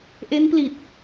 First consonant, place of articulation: glottal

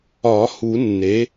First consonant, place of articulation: glottal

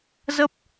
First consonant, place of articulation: alveolar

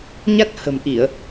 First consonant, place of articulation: palatal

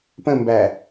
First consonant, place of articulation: labial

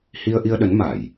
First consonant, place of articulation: glottal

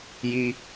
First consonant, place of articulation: palatal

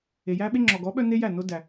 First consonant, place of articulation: palatal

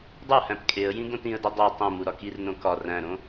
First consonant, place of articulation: alveolar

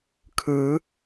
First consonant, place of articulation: velar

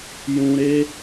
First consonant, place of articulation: palatal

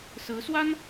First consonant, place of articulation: alveolar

